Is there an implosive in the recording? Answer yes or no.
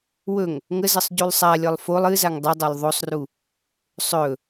no